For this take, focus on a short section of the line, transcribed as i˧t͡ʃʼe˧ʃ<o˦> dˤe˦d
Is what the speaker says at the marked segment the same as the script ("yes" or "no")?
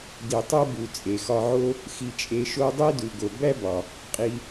yes